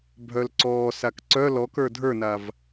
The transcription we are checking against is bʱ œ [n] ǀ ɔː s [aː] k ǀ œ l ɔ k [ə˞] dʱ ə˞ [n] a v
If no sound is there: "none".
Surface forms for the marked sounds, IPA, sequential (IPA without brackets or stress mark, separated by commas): l, a, ə˞, n